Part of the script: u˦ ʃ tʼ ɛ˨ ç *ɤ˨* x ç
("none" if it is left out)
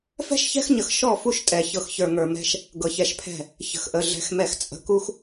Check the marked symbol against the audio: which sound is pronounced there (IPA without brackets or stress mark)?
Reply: ɤ˨